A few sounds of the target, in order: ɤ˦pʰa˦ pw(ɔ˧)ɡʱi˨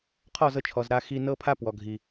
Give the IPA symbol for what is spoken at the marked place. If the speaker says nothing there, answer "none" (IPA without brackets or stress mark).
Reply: ɔ˨